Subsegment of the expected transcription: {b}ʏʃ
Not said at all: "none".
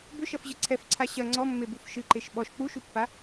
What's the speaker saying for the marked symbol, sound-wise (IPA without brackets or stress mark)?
b